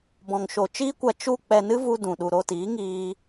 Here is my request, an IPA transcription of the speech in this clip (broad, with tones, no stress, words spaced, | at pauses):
bɔ̃˨ŋʃo˨ t͡ʃiː˦kʷa˧ t͡ʃu˧ k͡pɛ˧nɨ˦vu˧ dũ˨ɗu˨ɾo˧tiː˨˦ ŋiː˧